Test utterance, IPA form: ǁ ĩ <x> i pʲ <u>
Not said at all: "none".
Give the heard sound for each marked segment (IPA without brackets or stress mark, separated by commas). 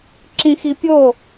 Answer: x, o